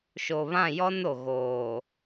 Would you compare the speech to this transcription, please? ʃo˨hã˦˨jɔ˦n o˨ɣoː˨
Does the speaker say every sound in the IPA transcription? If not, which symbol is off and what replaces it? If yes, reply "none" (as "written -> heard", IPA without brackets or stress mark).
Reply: h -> β